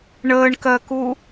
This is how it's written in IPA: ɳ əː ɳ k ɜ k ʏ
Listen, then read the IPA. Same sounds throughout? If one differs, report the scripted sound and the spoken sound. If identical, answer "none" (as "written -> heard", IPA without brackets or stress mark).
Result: ʏ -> u